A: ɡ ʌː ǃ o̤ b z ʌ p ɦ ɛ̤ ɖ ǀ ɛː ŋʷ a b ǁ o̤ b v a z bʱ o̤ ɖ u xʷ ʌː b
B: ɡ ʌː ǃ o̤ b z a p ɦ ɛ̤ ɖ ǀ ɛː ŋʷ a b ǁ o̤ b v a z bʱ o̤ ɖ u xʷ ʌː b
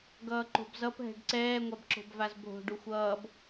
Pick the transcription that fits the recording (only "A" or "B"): A